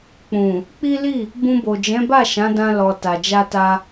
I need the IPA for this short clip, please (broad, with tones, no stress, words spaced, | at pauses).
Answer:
k͡pũ˨ | k͡pi˦ li˦˨ | bũ˧bo˨d͡ʒɛ̃˨˦ba˦˨ ʃã˨˦dã˧ lɔ˨ ta˨d͡ʒa˧ta˧